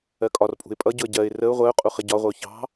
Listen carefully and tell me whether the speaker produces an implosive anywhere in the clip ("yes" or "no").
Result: no